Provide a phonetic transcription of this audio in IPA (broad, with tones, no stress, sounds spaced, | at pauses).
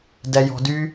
d ɛ˧ j ɔ̤˧ d y˦